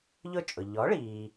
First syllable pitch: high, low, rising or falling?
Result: falling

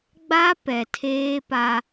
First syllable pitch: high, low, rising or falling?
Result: high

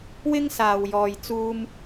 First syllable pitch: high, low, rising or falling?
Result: high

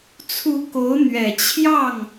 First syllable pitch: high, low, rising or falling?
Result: rising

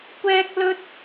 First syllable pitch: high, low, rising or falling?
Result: high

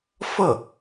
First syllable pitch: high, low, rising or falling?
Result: falling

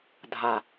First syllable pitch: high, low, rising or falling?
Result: low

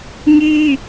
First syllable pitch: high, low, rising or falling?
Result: high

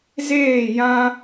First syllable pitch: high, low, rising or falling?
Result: falling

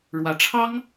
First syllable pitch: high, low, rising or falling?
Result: rising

